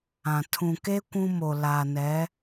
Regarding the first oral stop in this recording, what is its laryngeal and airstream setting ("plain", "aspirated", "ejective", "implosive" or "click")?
aspirated